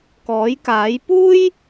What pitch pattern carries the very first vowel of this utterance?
rising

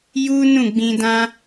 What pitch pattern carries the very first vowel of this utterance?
high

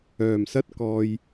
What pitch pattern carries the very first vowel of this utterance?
low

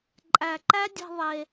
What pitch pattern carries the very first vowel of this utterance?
low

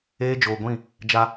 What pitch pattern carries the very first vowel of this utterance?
high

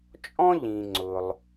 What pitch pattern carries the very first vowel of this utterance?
high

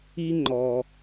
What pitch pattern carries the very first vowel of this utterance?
high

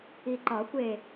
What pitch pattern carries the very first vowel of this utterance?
low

